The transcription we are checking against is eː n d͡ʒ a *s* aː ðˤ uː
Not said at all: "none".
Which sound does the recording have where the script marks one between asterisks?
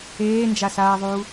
s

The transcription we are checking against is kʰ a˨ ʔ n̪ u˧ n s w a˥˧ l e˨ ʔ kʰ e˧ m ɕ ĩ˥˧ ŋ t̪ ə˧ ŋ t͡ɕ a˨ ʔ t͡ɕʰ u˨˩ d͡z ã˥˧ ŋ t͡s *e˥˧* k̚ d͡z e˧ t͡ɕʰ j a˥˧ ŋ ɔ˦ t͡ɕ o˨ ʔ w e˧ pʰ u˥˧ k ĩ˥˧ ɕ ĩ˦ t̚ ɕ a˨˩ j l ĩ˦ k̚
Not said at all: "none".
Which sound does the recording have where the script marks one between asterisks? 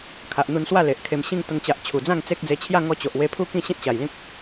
e˦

